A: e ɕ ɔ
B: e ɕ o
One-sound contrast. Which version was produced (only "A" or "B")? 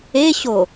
B